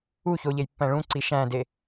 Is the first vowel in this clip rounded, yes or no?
yes